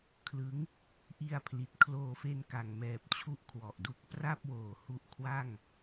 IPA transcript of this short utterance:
kʰlɯ˦˥ŋ | ʔi˧a̯pʰli˨˩t̚ kʰloː˧fe˧nka˨˩ŋmɛː˨˩p̚ t͡ɕʰu˦˥ʔkʰwɔ˨˩ʔdu˦˥k̚ pra˥˩p̚woː˨˩ hu˦˥ʔkʰwa˥˩ŋ

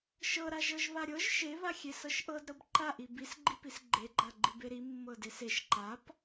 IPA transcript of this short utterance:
ʃɤɾa ʒɤʒβaɾʲɤʒ ʃeβaxʲe sɤʃʔɤdɾɤb ǃaʔi bisɡ͡ǃipis ɡ͡ǃeɡ͡ǃaɡ͡ǃib eɾi mːɤdeseʃ ǃap

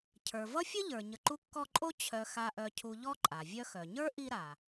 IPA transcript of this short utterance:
cʰə˞˩vʌ˥fʲə˥ʎə˞˩ ɲə˨ǃu˦kːɔ˦ǃʼo˥ t͡ɕʰœ˨ xa˨ʔœ˨cʰu˨ ʎɔ˥ǃʼa˩vʲœ˥ xœ˩ɲə˞˥ ʔi˦ɾa˩

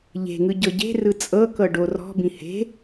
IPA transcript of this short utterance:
ʎe̤ŋɯ ɟɤɟe̤rɯ t͡sʼɤkɤ ɖorɔ̤bĩ he̤

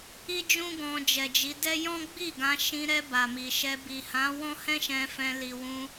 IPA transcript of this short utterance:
i˦d͡ʒũ˦ ɡɔ̃˧d͡ʒɛ˨d͡ʒi˨˦ dɛ˦ jɔ̃˦ɡ͡bi˦˨ɡã˧ ʃĩ˧ɾɛ˧ ba˨mi˨ʃɛ˧ bi˨hã˨˦ wɔ̃˦hɛ̃˦ʃɛ̃˧ fɛ̃˧li˨wũ˧

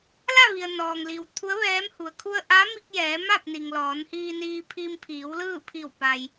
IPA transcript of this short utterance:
la˥˨ ʋi˩ə̯ nɔː˩ŋli˩w t̪ʰu˧˥ə̯ʋɛː˧˥mhu˩ə̯ kʰu˧ə̯ʔa˧˥mi˧k̚ jɛː˩˧ ma˥˨p̚ni˩ŋ lɔː˩˧nhiː˧niː˧ pʰi˧mpʰiː˩˧wlɯː˥˨ pʰi˧˩w pa˩j

